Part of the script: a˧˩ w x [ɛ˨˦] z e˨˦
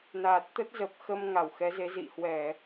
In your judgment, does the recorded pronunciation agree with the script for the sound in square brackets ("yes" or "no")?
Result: yes